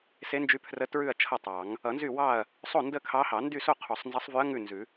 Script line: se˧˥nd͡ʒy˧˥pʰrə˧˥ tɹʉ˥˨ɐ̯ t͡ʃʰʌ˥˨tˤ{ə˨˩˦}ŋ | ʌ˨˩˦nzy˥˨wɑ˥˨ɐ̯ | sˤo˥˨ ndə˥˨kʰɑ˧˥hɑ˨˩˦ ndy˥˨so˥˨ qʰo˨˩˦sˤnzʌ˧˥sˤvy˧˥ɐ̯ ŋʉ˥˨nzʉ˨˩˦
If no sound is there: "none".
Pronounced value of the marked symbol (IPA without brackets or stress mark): ɑ˨˩˦